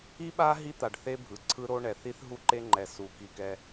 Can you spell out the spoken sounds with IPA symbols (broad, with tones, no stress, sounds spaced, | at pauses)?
i˦ ɓ a˦ ɦ i˦ t̪ a˨ ɖ θ e˦ bʱ ɯ˨ ǀʰ ɯ˦ ɾ o˦ ɳ ɛ˨ θ i˦ θ ɦ u˦ ǃ e˦ ŋ͡ǃ ɛ˨ s u˨˦ k i˨ k ɛ˦